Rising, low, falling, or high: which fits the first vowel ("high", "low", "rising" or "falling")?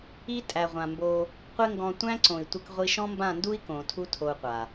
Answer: high